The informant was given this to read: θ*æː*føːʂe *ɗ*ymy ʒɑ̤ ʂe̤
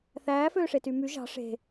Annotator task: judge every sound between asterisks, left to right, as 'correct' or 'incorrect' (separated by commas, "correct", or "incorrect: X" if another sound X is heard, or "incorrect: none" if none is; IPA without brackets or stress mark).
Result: correct, incorrect: t